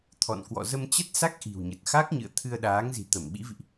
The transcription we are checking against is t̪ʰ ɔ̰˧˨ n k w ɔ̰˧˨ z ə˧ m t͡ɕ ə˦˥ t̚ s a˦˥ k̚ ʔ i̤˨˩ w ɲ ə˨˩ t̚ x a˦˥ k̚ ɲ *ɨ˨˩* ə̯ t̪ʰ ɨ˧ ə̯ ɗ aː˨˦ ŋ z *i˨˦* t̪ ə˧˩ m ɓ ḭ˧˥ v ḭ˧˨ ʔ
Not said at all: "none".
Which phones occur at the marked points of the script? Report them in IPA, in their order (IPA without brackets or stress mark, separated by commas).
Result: ɨ̰˧˨, i̤˨˩